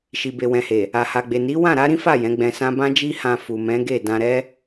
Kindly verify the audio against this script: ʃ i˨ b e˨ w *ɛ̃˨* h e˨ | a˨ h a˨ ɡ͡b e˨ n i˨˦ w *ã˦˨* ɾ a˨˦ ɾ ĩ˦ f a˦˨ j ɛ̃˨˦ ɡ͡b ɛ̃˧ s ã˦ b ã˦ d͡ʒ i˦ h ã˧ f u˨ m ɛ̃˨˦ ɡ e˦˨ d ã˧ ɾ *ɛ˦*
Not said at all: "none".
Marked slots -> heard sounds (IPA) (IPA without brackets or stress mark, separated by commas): ɛ̃˨, ã˦˨, ɛ˦